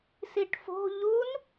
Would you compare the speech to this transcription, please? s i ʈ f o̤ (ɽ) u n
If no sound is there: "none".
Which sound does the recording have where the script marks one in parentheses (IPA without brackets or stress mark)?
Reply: ʎ